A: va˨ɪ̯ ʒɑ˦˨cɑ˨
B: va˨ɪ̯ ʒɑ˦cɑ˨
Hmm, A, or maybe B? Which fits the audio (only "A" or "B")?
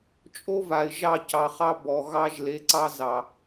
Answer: A